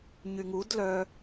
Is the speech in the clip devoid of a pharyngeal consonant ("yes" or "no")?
yes